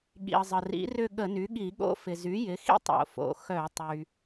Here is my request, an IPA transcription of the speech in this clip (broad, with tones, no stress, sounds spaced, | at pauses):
ɠ ḭ˩ ə̯ zˤ ə˩ r ḭ˩˥ r ʏ˥˧ ɠ ə˧˩˧ n y˩˥ ɠ i˧˩˧ ɠ o̰˥˧ f ɪ˩ z y˩˥ j ɪ˩˥ x ḭ˥˧ tˤ o̰˩ f o̰˩ x œ˧˩˧ tˤ y˩